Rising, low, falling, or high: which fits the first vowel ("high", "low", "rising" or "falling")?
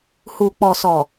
low